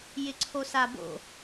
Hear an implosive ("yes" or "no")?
no